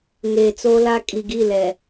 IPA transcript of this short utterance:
ŋeː˨t͡soː˦la˦ kʼi˨ɡi˦˨ lɛ˨

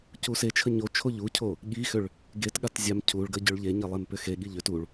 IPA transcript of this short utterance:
cuset͡ʃʰə ɲot͡ʃʰoʎ ucʰo | ɠixʏɭ | ɡetɠat zʲam cʰuɭɡə ɟʏɭʎeɲe lˠempʏxeɠiʎ ʏt uɭ

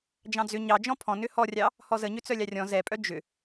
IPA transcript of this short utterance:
d͡ʒɑ̃d͡zʏ ɲɑd͡ʒɔ̃ pʰɔ̃ nʏhɔrʲɑ | hɔzəɲʏ t͡sœlʲɑrʲɔ̃ zɛpʼœ d͡ʒʏ

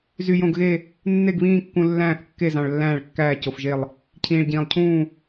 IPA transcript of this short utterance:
zy˨jõ˨ɡɣe˦˨ | nːe˦˨ɡβĩː˦˨kːũ˨ lːæ̃ː˦˨θkːe˦˨ zɑ̃˨ɭlːæ̃ː˦˨ɭkːæː˦˨ co˨fʒe˦˨lˠ | cʰĩː˨ɭɟĩː˨lˠ cʰũː˦˨

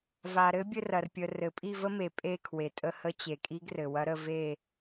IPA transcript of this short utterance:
va˩ɾɘ˧˥bʲɘ˦˨r ɐ˩rpʲə˩ rɘ˩pʼi˦˨və˧˥me˩ pʼe˦˨kʰwe˩ tʼə˦˨hə˧˥t͡ɕe˩ kʼi˧˥ɡrɘ˩wɐ˧˥ ɾə˦˨ve˦˨

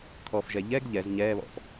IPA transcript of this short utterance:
kʰɔfʒɛ ʎɛɡ ʎɛz ɲɛːβɔ̰f

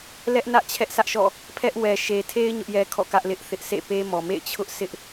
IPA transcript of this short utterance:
lɛ˦ʔnä˦ʔ t͡ɕʰɛ˦ʔsä˦ʔʃɔ̰˦˨ | pʰɛ˦ʔ wɛ˨ʃe˨tʰe˦ɪ̯ ɲʊ˦ʔjɛ˦kʰɔ̰˦˨kä˦ʔ lɪ˦ʔθɪ˦ʔ sʰḛ˦˨pe˦mɔ˨ mḛ˦˨ɪ̯ t͡ɕʰʊ˦ʔsʰɪ˦ʔ

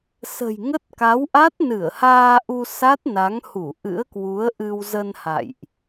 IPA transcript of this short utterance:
sə̤˨˩jŋə˦˥t̚ka˨˦wʔa˦˥t̚ nɨ˧˩ə̯haː˧ʔu˧ sa˦˥t̚na˨˦ŋhu˧˩ ʔɨ̰˧˥ə̯kwu˨˦ə̯ʔɨ˧w zə˧nha̰˧˨jʔ

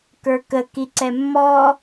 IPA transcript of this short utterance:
kə˞kə kiǀɛmːɔ

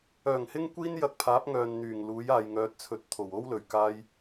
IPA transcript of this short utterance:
œː˨˩ŋhɪ˥ŋkʷiː˥n jɐ˧k̚pʰaː˨˥p̚ ŋœː˨nn̪yː˨˩ŋ luː˨˥jaː˨jŋœː˨˥t̚t͡sʰɵ˨t̚ t̪ʰo˨˩wo˥wlɵ˨˩ɥkaː˧j

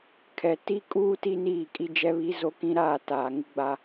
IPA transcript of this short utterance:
kʰɛ˨ ti˦kʼuː˦ ti˦niː˦˨kʼi˦ d͡ʒɛ˦βi˦zo˦kĩ˦ ɾaː˦˨taː˨ ŋɪ˦ɡ͡ba˦

